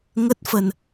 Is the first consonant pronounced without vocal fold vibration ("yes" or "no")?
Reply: no